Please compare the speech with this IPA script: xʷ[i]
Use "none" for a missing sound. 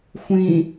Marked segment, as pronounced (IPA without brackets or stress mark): ĩ